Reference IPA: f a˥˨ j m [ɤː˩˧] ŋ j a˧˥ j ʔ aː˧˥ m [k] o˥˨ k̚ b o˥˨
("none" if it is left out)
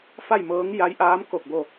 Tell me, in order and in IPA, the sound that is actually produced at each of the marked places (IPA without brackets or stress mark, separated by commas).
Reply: ɤː˧˥, k